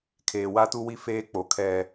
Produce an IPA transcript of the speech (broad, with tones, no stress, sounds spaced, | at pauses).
kʰ eː˨ w a˦ t u˦ w i˦ f eː˦ k͡p o˨ kʰ ɛ˦